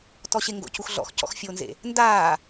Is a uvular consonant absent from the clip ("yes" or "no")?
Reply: yes